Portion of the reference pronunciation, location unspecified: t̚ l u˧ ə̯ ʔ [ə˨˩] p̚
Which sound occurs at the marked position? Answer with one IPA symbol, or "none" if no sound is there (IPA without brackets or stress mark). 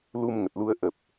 ə˨˩